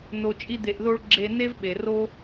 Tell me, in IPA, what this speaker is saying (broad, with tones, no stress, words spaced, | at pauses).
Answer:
no˨t͡ʃʼi˧d̪e˨ʔðo˧ɭ ɡ͡ǁe˧ne˦vɓe˨ ro˦